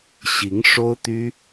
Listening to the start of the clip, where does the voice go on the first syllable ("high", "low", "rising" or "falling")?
rising